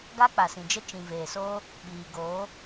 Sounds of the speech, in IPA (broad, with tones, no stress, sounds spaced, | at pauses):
ɡ a˦ k͡p a˨ s ĩ˨ d͡ʒ ə˦ t͡ʃ ĩ˨ v eː˨ s oː˦ | ɓ iː˨ ɡ oː˨˦